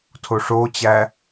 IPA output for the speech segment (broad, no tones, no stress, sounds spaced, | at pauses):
tʰ o ʂ o t͡ɕ æ